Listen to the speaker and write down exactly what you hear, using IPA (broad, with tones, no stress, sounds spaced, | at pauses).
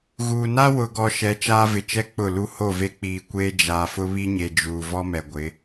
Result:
ɣ uː˨ n a˦ w ʊ˨ ɡ ɔ˨ ʃ ɛ˨˦ t͡ʃ aː˦ v ɪ˨ t͡ʃ ɛ˦ k͡p ʊ˦˨ l u˦ h o˦˨ v e˦ k͡p iː˨ kʷ eː˦ d͡ʒ aː˨ f ʊ˦ β i˦ ɲ e˨ d͡ʒ uː˨ v ɔ˦ m ɛ˨ ɡʷ ɪ˨˦